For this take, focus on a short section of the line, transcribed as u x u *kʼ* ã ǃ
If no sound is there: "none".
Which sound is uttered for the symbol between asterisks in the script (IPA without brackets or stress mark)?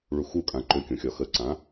kʼ